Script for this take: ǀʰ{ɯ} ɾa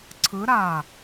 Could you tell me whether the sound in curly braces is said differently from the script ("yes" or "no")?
no